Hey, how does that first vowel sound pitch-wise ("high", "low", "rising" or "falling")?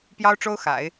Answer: high